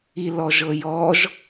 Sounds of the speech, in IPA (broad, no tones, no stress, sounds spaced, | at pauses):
i l ɔ ʒ ɤ j ɔ ʒ